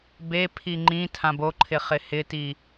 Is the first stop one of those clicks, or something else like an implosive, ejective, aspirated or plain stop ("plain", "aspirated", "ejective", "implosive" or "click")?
plain